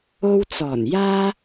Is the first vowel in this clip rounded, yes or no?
yes